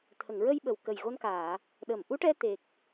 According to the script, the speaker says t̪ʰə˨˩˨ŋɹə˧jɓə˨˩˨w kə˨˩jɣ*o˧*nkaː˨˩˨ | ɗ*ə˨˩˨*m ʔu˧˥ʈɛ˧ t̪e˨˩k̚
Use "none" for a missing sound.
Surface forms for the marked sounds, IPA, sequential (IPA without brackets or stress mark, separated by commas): o˧, ə˨˩˨